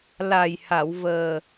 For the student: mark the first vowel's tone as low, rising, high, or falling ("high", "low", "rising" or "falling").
low